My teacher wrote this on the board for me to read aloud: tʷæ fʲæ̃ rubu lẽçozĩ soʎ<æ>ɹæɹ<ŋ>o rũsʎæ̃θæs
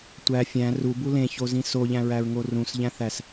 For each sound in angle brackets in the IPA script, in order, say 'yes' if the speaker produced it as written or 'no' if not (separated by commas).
no, yes